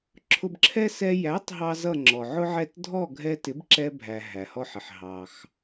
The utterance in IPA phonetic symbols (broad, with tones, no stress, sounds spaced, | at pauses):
ǁʰ ʊ˧ b ǁʰ ɛ˥ s ɛ˧ j æ˩˥ tˤ ɦ ɑ˥ z ʌ˥˩ ŋ͡ǁ ɔ˩ ʕ ʊ˥ ʕ ɛ˥˩ t dʱ ɔ˥˩ ɡʱ ɛ˧ t ɪ˩˥ b ǁ ɛ˧ bʱ æ˩ ɦ æ˩ h ɔ˧ ħ ɪ˩ ħ ɦ ɑ˩ x